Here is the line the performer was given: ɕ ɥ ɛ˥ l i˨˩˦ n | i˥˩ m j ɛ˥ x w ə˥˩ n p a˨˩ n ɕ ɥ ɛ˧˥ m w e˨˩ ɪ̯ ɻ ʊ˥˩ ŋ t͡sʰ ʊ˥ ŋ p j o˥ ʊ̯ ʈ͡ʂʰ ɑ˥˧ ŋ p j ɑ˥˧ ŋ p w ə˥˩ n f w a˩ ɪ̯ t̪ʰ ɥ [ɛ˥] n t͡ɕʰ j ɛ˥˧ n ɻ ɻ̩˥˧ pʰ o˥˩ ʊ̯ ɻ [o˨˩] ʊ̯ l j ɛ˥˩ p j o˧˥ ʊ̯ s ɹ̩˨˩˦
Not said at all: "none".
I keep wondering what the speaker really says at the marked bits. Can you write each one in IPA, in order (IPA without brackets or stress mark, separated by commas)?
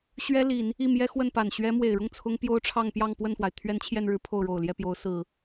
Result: ɛ˥, o˨˩